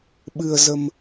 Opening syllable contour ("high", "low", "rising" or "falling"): low